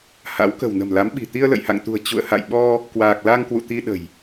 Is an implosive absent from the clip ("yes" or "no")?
no